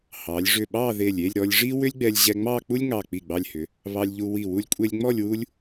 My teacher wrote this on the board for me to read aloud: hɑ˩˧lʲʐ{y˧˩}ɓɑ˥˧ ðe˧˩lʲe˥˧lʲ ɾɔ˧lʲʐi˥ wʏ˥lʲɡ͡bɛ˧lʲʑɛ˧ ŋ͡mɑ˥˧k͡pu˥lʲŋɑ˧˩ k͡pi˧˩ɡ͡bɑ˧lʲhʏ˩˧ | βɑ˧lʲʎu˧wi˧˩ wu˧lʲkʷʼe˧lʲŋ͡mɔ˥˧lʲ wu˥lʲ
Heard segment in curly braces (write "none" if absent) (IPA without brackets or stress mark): ʏ˧˩